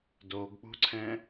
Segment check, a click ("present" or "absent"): present